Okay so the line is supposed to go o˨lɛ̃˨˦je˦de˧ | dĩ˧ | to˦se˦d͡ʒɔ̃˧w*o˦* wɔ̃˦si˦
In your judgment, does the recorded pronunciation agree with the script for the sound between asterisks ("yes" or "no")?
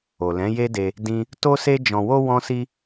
yes